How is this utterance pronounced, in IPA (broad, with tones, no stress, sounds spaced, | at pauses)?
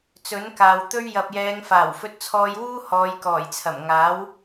t͡s ɵ˨˥ n k aː˨ w t̪ ɵ˥ ɥ j ɐ˨ p̚ j ɛː˨˧ ŋ f aː˨˩ w f ɵ˧ t̚ t͡sʰ ɔː˧ j w uː˥ h ɔː˨˧ j k ɔː˨˩ j t͡sʰ ɐ˨˩ m ŋ aː˨˥ w